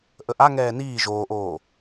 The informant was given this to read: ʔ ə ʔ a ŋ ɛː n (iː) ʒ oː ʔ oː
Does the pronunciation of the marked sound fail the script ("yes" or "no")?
no